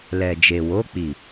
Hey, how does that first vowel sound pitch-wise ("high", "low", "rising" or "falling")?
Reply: low